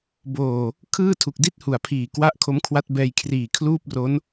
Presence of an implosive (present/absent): absent